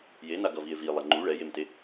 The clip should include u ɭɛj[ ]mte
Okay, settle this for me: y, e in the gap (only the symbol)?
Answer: e